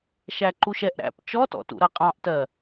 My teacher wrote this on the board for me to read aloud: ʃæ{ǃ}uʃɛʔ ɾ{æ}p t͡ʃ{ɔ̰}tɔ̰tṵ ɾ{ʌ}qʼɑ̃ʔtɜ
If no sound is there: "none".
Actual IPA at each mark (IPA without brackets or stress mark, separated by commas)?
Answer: ǃ, æ̰, ɔ, ʌ